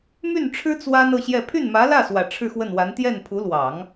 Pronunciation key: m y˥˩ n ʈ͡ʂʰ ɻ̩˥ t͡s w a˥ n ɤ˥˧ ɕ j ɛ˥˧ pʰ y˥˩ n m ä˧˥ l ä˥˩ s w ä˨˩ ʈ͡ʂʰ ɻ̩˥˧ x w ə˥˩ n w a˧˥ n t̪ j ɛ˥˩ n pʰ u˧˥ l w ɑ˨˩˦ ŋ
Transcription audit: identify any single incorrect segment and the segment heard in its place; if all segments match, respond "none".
none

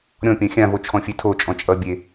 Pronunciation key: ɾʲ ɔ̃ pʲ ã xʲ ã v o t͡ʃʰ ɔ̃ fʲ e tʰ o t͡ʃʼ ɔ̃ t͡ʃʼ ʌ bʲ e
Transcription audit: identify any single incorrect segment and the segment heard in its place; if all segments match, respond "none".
none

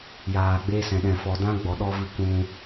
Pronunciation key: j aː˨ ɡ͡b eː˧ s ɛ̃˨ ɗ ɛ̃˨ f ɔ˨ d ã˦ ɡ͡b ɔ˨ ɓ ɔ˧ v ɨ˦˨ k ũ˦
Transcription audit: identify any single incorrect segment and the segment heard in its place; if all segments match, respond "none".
ɓ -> ɗ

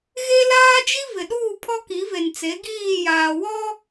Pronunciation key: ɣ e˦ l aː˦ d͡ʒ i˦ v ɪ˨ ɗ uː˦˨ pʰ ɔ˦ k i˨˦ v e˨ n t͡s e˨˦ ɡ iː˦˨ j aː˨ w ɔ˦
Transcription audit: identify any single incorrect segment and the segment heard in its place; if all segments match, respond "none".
none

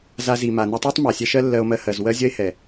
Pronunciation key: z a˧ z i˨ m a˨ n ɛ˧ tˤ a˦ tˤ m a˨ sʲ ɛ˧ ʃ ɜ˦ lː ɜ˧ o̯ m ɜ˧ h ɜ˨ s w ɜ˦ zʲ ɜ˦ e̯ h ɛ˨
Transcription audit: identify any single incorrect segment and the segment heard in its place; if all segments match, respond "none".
s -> z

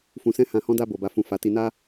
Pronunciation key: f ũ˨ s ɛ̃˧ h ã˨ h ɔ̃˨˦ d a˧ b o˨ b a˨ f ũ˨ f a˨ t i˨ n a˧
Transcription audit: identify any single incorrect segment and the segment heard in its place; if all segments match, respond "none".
none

